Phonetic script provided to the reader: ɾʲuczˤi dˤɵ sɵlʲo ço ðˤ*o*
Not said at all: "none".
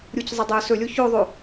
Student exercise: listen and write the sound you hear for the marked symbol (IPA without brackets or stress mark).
o